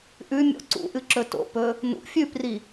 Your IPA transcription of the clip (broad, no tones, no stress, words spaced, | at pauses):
ʔʉmʲo̰ ǀṵʔɨǁɵ to̰pɵ | nṵ fʲʉpri